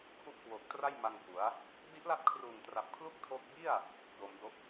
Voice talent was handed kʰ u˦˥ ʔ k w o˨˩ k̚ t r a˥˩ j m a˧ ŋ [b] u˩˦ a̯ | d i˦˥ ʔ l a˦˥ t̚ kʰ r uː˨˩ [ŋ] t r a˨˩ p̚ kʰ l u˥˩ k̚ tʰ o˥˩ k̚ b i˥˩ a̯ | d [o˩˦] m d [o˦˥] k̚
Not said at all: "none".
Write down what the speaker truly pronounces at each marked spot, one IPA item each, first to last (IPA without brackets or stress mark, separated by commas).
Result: b, ŋ, o˩˦, o˦˥